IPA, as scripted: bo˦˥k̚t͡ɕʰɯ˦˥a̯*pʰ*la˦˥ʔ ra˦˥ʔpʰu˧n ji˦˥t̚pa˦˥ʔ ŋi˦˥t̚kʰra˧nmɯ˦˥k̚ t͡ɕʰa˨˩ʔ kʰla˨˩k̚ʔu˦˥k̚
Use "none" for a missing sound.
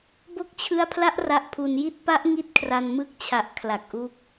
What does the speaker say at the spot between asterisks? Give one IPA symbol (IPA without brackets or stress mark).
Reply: pʰ